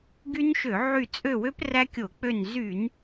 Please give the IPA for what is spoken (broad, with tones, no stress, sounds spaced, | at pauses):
ɡ y˦˥ n ʃ ø˧˩˧ ʕ y˦˨ t͡sʼ ø˦˨ w ø˦˥ p r æ˦˥ kʲ o˧˩˧ k͡p ø˦˨ n z y˧˩˧ n